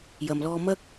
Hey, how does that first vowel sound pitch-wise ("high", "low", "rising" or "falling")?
low